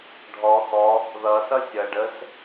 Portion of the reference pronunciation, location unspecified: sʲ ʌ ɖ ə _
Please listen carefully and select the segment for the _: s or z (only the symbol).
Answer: s